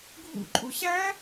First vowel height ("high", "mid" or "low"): high